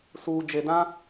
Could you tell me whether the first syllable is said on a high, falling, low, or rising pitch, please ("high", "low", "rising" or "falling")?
low